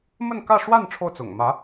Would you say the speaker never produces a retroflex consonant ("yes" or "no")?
no